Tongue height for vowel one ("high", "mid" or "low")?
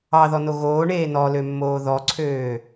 low